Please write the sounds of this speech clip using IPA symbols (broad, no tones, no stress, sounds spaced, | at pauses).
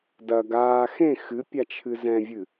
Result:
d ɐ ɡ aː x ẽ x ɨ pʲ a t͡ʃʰ ɨ z ɛ̃ vʲ ɨ